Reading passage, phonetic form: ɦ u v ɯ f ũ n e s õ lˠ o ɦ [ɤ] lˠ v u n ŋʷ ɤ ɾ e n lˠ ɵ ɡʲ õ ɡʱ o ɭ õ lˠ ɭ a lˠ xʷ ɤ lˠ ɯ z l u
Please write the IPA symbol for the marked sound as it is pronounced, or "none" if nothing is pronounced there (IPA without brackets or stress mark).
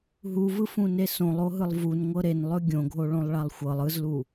ɯ